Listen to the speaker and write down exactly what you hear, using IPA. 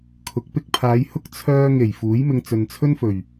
kʰ ʊ˨˥ k̚ p ɪ˧ k̚ pʰ aː˨˧ j h ʊ˥ k̚ t͡sʰ œː˧ ŋ e˨˩ j f uː˨˥ j m ɪ˧ ŋ t͡s ɵ˨ n t͡sʰ ɵ˥ n f ɵ˨˩ ɥ

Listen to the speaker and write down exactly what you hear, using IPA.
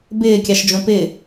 b ɪː kʲ ɑ ʃ d͡ʒ õ p ɪː

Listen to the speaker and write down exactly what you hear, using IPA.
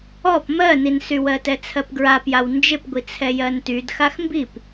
ɔ p m ɜ n i n s y w ɜ t ɛ t͡sʰ ɜ p ɡ ɹ a p j a w n d͡ʒ ɪ p ɡʷ i t͡sʰ ɛ j ɜ n t y d x a x m b i p

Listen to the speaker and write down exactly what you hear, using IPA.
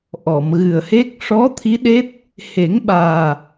ʔ ɔ˨˩˨ m ɣ ɨ˨˩ ə̯ h e˦˥ k̚ ʂ ɔ˧˥ t̪ʰ i˧˥ ɗ e˦˥ t̚ | h e˨˩˦ ŋ ɓ aː˨˩

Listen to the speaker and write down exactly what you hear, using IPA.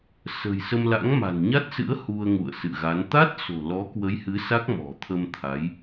s ə̤˨˩ j s ə˧ m l a̰˧˥ ŋ m a̤˨˩ n ɲ a˦˥ t̚ s ɨ̰˧˥ ə̯ h u˧ ə̯ ŋ ṵ˧˨ ə̯ s ɨ̰˧˨ ɣ a˨˦ n t̪ a˦˥ t̚ s o̤˨˩ l ɔ˨˦ k w ə˨˦ j h ɨ˨˦ s a˦˥ k̚ m ɔ̤˨˩ t̪ʰ ə˧ m t̪ʰ a˨˦ j

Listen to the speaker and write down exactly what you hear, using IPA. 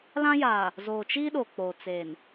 l ã˦ j aː˨ | z oː˨ t͡ʃ iː˦ ɗ o˨ k͡p o˨ t͡s eː˨ n

